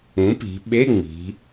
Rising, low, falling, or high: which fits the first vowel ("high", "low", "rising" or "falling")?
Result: rising